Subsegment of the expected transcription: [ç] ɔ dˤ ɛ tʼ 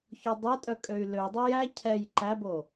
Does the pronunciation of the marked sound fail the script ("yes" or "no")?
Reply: no